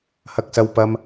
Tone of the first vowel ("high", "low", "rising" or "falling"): high